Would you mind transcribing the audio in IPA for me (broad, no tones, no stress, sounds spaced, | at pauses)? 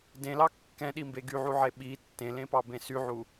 d ẽ l ɑ kː ɛ̃ ɗ i m b e ɡ y ʕ u ʕ e ɓ i tː ẽ l ẽ p ɑ b ẽ s y ʕ u